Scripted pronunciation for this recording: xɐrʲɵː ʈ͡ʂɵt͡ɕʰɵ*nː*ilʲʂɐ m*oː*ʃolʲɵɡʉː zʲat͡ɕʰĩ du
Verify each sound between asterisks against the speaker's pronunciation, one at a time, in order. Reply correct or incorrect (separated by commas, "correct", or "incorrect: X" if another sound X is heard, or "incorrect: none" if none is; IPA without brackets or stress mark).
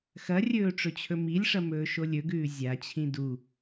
incorrect: m, incorrect: ɵː